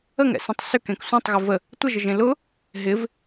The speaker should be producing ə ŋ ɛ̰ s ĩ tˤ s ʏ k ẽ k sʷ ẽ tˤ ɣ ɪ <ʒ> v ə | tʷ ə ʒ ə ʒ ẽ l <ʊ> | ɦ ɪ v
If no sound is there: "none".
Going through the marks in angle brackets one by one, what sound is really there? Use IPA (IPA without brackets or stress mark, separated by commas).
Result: none, ʊ